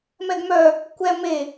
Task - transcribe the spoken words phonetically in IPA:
m ɛ ɡ m œ | kʷ ɛ m e

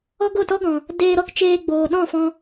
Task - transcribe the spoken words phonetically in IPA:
ɔ˦ ɡ o˦˨ t ɔ˦ ɡ ɔ̃˨ | d eː˧ ɾ ɔ˦ k t͡ʃ eː˧ ɡ͡b oː˨ ɗ ɔ̃˦˨ f ɔ̃˧

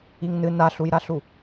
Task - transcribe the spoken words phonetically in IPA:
i ŋ n ɨ n a ɬ u j ɾ a ɬ u

